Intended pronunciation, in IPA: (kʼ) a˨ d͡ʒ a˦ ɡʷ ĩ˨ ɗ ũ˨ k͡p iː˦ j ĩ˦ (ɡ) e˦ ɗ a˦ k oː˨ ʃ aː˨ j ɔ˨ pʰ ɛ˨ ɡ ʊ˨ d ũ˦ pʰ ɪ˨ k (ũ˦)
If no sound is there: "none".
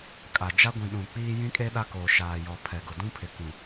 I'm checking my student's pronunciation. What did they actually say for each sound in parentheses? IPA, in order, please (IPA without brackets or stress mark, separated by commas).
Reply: kʼ, kʼ, ũ˨